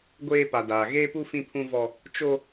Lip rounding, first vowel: unrounded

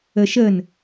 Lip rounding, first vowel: unrounded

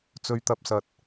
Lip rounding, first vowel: rounded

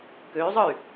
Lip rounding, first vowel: rounded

